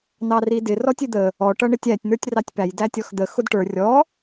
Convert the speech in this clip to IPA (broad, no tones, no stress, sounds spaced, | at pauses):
n ɑ r i d ɪ r ɔ tʲ ɪ d̪ ə | ɔ ʈ ʌ ɳ ɪ tʲ æ tʲ n̪ ə˞ tʲ r ɑ tʲ p æ j d æ tʲ ɔ x d̪ ə x ʊ d ʈ ə˞ rʲ ɔ